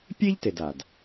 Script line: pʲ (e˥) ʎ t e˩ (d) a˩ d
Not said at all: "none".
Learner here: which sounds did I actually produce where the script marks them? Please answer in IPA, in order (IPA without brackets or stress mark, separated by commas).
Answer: e˥, d